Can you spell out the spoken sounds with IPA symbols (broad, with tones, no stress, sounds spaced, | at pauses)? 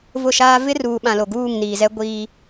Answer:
v ʊ˦˨ ʃ aː˦ v ɪ˦ r uː˨ ɓ ã˨ l o˨ ɡ uː˦˨ ŋ n iː˨ z ɛ˦ ɡʷ iː˦